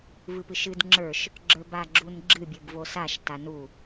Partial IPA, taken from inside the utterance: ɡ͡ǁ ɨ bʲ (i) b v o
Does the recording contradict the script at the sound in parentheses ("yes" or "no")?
yes